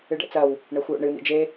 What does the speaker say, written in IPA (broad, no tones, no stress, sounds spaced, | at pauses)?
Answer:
ɨ ɖ ɛ̰ t͡s ɐ w | ɳ ɛ xʷ j o̰ ɳ ɨ n̪ ḭ d͡ʒ e